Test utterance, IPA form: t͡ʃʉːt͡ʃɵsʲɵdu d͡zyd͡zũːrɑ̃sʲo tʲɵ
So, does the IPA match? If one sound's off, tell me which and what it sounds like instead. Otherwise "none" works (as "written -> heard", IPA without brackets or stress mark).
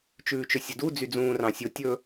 none